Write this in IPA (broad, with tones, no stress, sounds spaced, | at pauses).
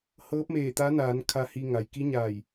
h ɤː˧˥ p̚ m eː˧˩ t̪ a˧˥ n aː˩˧ n kʰ a˧ h i˧ ŋ a˩ j k i˧˥ ɲ aː˧˩ j